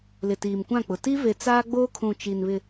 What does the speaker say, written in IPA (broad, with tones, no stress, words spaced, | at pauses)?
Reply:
lɪ˨tiː˨mkʷã˦˨k͡pʊ˨ ti˦ve˨ t͡saː˦ɡ͡boː˦kʰũ˨ t͡ʃi˨nβɪ˨